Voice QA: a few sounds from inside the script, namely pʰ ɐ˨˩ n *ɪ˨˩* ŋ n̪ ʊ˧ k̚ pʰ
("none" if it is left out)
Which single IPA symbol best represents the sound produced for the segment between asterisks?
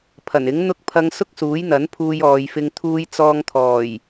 ɪ˨˥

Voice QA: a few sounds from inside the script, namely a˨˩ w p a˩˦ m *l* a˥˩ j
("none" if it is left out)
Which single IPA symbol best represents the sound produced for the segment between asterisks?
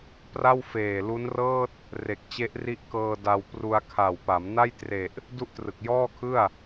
n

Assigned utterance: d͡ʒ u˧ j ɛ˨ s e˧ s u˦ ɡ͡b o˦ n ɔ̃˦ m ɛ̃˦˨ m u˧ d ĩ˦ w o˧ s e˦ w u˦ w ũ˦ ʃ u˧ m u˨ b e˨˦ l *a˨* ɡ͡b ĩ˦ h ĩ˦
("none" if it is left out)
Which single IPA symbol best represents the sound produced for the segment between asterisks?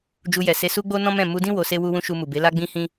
a˦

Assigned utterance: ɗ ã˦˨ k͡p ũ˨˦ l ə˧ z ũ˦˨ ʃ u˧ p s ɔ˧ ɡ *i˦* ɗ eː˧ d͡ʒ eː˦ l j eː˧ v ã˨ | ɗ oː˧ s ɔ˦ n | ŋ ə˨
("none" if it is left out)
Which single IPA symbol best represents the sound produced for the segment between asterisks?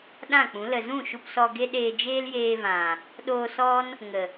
e˦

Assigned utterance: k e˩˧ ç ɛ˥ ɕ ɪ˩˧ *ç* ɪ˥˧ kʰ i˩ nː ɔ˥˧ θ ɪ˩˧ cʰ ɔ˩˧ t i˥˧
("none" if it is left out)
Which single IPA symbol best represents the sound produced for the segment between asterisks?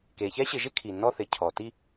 ʒ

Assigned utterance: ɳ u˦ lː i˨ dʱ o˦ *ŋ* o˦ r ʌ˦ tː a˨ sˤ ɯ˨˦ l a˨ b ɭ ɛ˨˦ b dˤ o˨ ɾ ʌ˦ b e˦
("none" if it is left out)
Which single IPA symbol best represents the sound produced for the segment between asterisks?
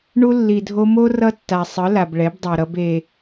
m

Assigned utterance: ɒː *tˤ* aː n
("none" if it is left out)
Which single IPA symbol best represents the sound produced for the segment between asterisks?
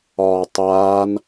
tˤ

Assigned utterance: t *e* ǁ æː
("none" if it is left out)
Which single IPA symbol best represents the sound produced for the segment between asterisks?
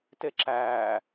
e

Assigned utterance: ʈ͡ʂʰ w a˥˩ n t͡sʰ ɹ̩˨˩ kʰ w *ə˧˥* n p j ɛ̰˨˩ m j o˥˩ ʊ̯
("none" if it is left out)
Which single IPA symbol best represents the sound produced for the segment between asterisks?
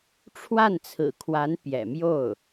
a˧˥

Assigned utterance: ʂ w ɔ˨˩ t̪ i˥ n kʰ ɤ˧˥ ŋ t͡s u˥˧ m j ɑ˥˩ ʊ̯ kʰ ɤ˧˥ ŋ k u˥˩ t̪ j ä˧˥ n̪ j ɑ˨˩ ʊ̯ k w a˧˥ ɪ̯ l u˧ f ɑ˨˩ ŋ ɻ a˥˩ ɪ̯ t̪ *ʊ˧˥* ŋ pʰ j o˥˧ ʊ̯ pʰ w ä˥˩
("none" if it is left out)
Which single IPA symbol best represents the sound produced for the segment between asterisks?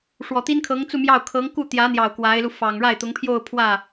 ʊ˧˥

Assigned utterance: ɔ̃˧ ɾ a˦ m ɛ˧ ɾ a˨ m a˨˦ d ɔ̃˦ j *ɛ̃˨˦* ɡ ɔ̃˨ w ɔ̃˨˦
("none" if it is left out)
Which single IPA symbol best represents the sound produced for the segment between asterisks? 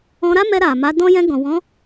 ɛ̃˧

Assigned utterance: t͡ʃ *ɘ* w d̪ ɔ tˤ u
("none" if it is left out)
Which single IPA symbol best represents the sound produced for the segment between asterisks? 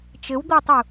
ɘ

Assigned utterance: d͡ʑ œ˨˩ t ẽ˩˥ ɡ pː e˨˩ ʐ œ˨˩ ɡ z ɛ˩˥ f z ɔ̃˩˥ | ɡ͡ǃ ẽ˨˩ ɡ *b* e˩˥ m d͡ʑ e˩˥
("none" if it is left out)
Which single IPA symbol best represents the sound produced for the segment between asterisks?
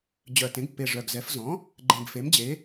f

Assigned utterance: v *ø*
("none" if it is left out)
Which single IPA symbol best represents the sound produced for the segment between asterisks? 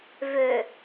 ø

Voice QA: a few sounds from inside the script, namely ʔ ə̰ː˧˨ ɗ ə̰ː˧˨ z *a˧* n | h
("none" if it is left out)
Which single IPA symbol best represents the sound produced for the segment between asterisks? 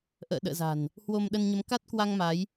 a̤˨˩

